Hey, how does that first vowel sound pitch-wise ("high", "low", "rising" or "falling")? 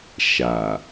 low